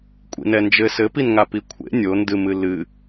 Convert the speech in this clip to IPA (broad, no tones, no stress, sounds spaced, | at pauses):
kʷʼ ḭ n ɛ n d͡ʒ ɘ s ɘ p i n ŋ a p i kʷʰ ḛ nʲ o n d ɨ m ɨ l ɨ